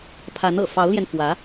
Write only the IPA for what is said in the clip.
pʰa˧˥nɤ̰˨˩ fɑ˧˥ʊ̯ljɛ˧nfwä˧˥

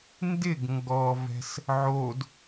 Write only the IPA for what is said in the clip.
ndɪɡ ŋɡɔvɛ̤s | ʕod

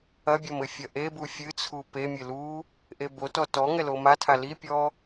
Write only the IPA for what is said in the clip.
ɐbʲɐm ɘfʲɐʔebu fʲɨt͡sʰu pemʲɘ lu | ʔebotɔ tɔ ŋɛlomatʰa lipʲɔ

